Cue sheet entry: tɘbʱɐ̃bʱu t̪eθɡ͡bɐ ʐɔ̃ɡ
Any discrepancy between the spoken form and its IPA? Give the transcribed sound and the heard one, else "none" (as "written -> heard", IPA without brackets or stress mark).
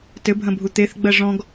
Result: none